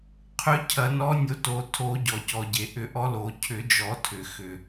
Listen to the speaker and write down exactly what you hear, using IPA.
qʰ ʏ˧˥ cʰ ɐ˨˩˦ n ɔ˧˥ nʲ o˧˥ t o˨˩˦ tʰ o˨˩˦ ɟ ɔ˩ c ɔ˩ ɟ e˩ ʔ ʏ˨˩˦ ʔ ɔ˧˥ l o˨˩˦ cʰ ʏ˨˩˦ d͡ʒ ɔ˨˩˦ tʰ ʏ˩ x ʏ˩

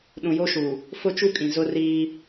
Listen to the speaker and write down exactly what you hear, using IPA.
ɗ ũ˨ j o˦ ʃ u˨ | f ʊ˦ t͡ʃ u˦ kʼ ĩ˨ z ʊ˦ r iː˦

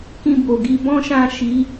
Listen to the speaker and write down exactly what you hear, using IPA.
k ĩ˧ b o˨ ɡ i˨˦ b ɔ̃˦ ʃ ã˦˨ ʃ i˨˦

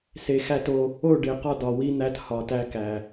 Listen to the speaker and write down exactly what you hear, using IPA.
s e˨ x æ˦˨ t o˦ | o˦˨ ɖ e˨ q ɒ˦ d ɒ˨ w i˦ n̪ æ˦ t h ɒ˨ t æ˦ k æ˨

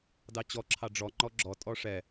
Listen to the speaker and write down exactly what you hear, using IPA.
d ɑ t͡ɕ ɔ ǁʰ ɑ ɖ͡ʐ ɔ ŋ͡ǃ ɔ ɡ͡ǁ ɔ tʼ ɔ ʂ ɛ

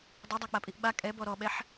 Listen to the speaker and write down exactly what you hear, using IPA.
dˤ ɛ dˤ æ k͡p a pʼ i ʔ ɓ a kʼ ɛ b ɔ ɾ ɔ ɓ ɛ ħ

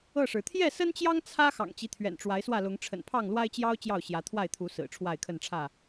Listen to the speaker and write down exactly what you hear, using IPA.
ɤ˥˨ ʂ ɻ̩˩ t̪ʰ j ɛ˥˨ s ə˦ n t͡ɕ j ɑ˦ ŋ t͡sʰ ä˦ x ɑ̰˨˩ ŋ t͡ɕ i˦ t̪ʰ ɥ ɛ̰˨˩ n ʈ͡ʂ w a˨˦ ɪ̯ s w ä˥˨ l ʊ˨˦ ŋ ʈ͡ʂʰ ə̰˨˩ n pʰ ɑ˥˨ ŋ l w a˦ ɪ̯ t͡ɕ j ɑ˦ ʊ̯ t͡ɕ j ɑ˥˨ ʊ̯ ɕ j ä˨˦ t̪ʰ w a˥˨ ɪ̯ t̪ʰ u˨˦ s ɹ̩˨˩ ʈ͡ʂʰ w a˥˨ ɪ̯ kʰ ə˥˨ n ʈ͡ʂʰ ä˥˨

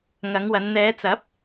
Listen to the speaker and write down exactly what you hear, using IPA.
ŋ ɐ˨˧ ŋ w ɐ˨˧ n n̪ ɛː˨˧ t͡s ɐ˨˥ p̚

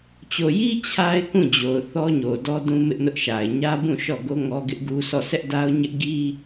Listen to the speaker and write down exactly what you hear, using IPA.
t͡ɕ o˨ j i˦ t͡ɕʰ a˦ ɪ̯ k ũ˦˨ d͡ʑ o˨ ʊ̯ θ ɔ˦ ɲ o˨ d ɔ˦ d ũ˦ m ɪ˦ ʔ n ʊ˦ ʔ ʃ a˨ ɪ̯ ɲ ä˦ b ũ˦˨ ʃ ɔ˦˨ ɡ o˦ ŋ ɔ˦ ɡ ɪ˦ ʔ ɡ u˦ s ɔ˦˨ s ɛ˦ ʔ d a˦ ʊ̯ ɲ ɪ˦ ʔ ɡ i˦

